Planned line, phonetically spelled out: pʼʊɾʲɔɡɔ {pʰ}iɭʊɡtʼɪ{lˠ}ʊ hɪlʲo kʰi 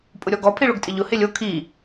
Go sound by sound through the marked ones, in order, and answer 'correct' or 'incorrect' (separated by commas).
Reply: correct, incorrect